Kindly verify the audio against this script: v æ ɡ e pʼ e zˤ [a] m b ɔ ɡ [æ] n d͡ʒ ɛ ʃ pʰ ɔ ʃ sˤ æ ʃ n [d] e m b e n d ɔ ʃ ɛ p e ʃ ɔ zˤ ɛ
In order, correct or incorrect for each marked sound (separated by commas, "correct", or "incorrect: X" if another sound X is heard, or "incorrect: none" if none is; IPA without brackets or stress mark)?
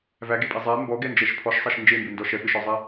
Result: incorrect: æ, incorrect: ɛ, incorrect: d͡ʒ